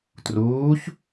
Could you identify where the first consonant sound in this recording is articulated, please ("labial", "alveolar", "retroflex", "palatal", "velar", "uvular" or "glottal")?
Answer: alveolar